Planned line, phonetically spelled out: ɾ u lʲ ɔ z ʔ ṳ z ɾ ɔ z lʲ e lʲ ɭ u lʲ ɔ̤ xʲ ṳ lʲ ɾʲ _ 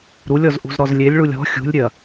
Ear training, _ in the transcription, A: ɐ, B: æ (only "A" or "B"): A